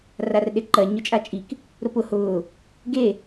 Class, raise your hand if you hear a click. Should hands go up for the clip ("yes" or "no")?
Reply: yes